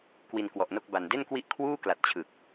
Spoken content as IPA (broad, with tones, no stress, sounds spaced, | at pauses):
k w i˧ n k w ɔ˨˩ ʔ n o˥˩ k̚ b a˨˩ n d e˥˩ n k w i˥˩ ʔ kʰ w uː˥˩ k l a˨˩ t̚ t͡ɕʰ ɯ˨˩ k̚